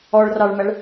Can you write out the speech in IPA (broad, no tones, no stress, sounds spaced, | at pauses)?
ɔ ɭ r ɑ ɭ m æ ɭ